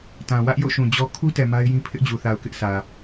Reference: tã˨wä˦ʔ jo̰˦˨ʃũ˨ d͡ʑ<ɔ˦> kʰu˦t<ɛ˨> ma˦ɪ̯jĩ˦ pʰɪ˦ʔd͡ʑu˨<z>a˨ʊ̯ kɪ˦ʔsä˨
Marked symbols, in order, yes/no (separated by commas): yes, yes, no